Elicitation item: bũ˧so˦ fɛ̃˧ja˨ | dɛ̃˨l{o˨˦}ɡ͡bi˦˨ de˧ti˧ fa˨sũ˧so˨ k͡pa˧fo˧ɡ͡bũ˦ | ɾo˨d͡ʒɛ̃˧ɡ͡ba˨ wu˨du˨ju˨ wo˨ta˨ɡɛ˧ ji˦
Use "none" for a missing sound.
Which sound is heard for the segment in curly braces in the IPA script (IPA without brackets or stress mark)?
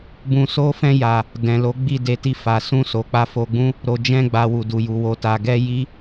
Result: o˨˦